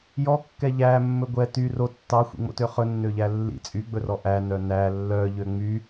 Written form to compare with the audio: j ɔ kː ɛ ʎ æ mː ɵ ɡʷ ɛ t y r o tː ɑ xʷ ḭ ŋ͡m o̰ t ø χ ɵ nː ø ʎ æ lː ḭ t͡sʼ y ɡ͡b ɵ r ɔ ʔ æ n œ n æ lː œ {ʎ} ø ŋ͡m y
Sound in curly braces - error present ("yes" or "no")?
no